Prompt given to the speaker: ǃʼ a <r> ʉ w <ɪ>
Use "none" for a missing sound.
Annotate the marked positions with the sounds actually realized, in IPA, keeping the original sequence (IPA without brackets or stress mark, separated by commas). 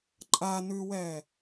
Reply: n, ɛ